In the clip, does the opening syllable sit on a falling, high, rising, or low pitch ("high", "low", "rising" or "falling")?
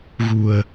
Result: low